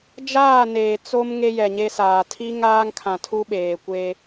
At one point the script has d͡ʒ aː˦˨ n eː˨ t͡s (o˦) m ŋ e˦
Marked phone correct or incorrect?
correct